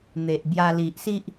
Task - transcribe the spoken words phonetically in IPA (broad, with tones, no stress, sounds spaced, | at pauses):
n̪ e˨ ʔ b j a˧ l i˨ ʔ s i˦ ʔ